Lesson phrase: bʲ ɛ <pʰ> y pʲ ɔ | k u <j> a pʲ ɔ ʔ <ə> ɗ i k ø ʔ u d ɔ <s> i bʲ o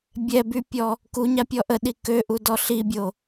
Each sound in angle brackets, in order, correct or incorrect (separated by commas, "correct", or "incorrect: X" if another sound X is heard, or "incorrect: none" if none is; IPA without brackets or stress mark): incorrect: b, incorrect: ɲ, correct, incorrect: ɬ